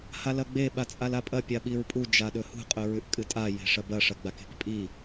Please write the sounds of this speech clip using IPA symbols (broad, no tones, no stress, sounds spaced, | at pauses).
h a l ɐ ɡ͡b e ɓ a t͡sʼ a l a pʼ ɐ pʲ a ɓ i ɹ pʼ u d͡ʒ a ɗ ɵ h ṳ qʼ ɵ ɹ ʉ ʔ kʼ ɨ tʼ a j e̤ ʂ ɐ b ɐ ʂ ɐ ɡ͡b a k e̤ k pʼ i